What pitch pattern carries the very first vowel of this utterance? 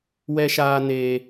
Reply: high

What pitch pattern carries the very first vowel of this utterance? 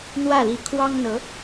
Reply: falling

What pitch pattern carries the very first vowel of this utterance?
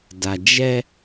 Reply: low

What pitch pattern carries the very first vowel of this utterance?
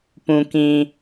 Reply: low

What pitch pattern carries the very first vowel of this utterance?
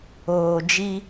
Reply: low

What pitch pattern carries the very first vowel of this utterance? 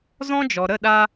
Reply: high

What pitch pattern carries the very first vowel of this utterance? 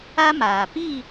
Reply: high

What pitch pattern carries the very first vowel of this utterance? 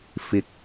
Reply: low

